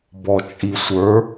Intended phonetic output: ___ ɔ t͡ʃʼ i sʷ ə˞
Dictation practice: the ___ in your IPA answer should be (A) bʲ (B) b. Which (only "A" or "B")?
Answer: B